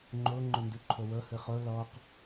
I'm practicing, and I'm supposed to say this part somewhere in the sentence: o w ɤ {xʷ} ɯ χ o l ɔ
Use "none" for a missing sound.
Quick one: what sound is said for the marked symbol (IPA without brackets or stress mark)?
h